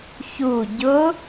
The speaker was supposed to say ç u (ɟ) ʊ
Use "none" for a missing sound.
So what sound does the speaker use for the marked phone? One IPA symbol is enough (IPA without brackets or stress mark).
ɟ